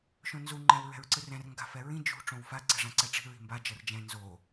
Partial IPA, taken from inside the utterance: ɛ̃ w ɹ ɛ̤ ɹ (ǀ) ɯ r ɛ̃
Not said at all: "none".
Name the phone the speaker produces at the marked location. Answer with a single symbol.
ǀ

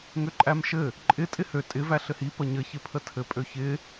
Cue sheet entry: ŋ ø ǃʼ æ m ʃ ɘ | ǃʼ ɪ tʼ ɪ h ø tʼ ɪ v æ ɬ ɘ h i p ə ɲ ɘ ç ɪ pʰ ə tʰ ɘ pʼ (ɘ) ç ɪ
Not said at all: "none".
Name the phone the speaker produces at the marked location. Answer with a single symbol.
ø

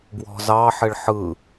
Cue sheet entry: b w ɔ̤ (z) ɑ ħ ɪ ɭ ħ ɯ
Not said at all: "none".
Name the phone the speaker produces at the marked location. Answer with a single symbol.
z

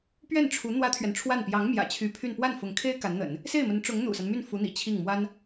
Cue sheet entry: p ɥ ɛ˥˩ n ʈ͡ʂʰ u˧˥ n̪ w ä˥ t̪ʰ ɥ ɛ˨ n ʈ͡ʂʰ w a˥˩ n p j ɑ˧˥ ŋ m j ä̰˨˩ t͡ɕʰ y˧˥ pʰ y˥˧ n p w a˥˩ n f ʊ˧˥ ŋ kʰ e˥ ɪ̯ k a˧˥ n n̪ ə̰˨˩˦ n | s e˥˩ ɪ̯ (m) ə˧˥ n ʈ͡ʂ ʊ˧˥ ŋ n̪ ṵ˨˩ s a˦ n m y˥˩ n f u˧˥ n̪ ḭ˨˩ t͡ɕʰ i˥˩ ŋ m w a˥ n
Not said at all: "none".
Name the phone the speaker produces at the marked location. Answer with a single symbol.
m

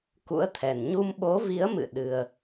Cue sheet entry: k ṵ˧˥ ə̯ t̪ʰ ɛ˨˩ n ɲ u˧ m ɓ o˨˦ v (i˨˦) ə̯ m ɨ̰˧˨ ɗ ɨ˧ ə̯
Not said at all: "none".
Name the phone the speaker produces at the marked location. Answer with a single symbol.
i˨˦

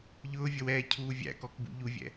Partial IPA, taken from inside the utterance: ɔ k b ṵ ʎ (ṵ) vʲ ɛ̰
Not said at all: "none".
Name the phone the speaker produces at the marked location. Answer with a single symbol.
u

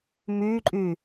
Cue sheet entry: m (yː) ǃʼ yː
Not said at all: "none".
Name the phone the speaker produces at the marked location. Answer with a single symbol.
yː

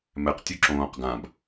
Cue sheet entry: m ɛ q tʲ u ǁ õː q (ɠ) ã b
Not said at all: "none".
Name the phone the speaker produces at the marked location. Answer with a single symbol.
ɡ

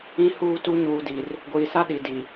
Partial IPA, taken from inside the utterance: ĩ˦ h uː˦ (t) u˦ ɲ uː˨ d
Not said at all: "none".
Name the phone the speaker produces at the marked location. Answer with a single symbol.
t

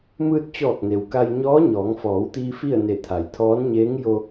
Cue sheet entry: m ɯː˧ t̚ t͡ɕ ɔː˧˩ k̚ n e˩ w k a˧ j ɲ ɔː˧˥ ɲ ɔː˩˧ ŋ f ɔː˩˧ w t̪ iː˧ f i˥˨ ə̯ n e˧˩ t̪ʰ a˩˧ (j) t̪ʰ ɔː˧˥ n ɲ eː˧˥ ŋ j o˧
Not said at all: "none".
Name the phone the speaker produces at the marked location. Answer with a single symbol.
j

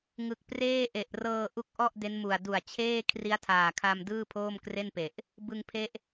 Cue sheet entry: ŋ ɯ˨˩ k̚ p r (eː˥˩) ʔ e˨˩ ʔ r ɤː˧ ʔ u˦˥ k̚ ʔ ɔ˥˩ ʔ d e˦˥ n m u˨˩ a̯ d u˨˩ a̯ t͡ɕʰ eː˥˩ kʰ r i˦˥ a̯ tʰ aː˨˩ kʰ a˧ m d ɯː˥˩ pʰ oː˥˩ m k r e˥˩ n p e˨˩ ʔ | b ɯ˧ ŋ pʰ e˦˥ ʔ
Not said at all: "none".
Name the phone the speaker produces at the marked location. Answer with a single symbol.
eː˥˩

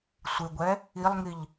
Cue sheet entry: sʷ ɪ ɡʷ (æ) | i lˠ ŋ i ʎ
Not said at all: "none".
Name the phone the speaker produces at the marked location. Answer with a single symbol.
ɛ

